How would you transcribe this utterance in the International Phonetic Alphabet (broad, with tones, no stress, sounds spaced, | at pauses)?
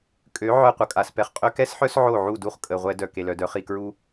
kʼ ø˨˦ ʕ œ˦˨ qʷ ə˧ kʼ a˨ s p ɛ˧ χ qʼ ø˧ k ɛ˦ s ħ œ˦ s ʕ o˦˨ ʕ u˦˨ d u˦ χ kʼ ə˨ ʁʷ ɛ˧ d œ˨ k e˨ l œ˨ d œ˨˦ χ i˨ k ɹ u˦